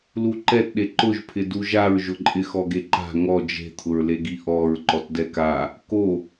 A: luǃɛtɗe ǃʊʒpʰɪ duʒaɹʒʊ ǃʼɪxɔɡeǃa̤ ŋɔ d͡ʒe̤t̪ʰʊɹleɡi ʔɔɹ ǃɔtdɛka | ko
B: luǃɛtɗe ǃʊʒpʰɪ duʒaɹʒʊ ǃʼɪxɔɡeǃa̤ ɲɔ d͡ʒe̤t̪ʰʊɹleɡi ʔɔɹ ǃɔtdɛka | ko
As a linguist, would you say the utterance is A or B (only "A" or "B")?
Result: A